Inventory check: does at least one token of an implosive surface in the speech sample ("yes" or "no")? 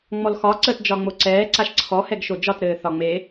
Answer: no